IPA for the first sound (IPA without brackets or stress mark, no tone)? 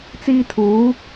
t͡s